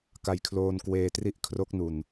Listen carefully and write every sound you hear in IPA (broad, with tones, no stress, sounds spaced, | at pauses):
k a˧ j kʰ l oː˧ n k w eː˧ t r i˦˥ ʔ kʰ r o˦˥ k̚ n u˧ n